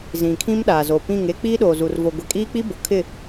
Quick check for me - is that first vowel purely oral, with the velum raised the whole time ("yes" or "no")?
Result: no